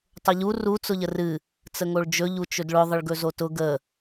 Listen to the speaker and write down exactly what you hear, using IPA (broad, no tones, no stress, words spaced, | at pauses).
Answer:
tˤʊʎu ru t͡sʊʎərɨ | t͡səŋoɭd͡ʒɵ ʎut͡ʃɵdɭʊ ðˤəɭɡɵzotʊ ɡə